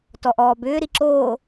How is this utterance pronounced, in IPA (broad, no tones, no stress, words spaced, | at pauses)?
tɔʔɔːbʏː ɾiǁoː